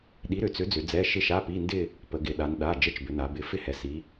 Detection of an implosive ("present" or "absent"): present